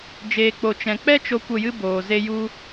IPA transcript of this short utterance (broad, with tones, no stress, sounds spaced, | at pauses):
d͡ʒ eː˨ k͡p o˨ t͡ʃ ɛ̃˨ k͡p ɛ˦ t͡ʃ o˧ kʷ ə˦˨ j ɨ˦ b oː˨ z e˦ j u˦